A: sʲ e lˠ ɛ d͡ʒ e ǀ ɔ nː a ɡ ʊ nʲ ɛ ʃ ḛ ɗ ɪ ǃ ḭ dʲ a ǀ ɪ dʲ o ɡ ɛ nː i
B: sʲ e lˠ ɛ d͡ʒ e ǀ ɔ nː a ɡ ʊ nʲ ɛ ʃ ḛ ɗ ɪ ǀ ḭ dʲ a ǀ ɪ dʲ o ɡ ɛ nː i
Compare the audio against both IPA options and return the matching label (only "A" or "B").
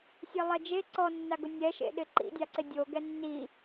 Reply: A